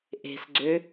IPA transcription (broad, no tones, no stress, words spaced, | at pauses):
ʔe̤sɡ͡ǀø